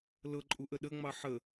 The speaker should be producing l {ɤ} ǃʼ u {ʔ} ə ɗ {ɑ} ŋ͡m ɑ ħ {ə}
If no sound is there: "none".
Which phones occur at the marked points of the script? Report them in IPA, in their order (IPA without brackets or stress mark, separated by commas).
ɤ, ʔ, ə, ə